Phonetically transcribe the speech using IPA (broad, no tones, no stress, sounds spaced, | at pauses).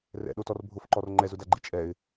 r ɛ̰ ɗ o t ɔ r bʱ ʊ f ǃ ɔ r ŋ͡ǃ ɛ z ʊ d a ɡ͡ǃ i t͡ʃʼ ɛ ɪ̯